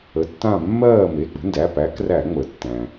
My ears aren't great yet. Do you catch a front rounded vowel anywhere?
no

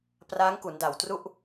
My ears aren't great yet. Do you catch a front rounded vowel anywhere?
no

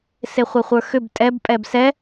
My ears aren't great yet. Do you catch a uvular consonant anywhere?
yes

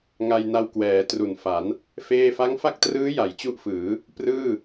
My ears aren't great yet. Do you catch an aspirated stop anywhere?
no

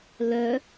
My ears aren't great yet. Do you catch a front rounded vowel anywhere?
yes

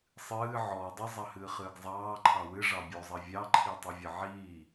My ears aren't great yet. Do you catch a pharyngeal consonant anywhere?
yes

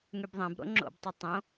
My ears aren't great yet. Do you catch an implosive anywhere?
no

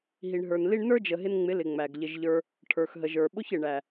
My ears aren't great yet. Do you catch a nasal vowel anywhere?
no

